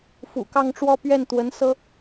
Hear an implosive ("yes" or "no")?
no